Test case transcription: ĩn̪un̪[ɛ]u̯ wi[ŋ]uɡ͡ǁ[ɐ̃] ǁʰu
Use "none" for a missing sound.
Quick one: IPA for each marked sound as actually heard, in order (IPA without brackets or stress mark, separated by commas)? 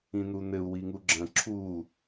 ɘ, ŋ, ɐ̃